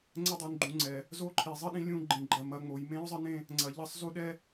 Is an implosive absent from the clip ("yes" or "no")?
no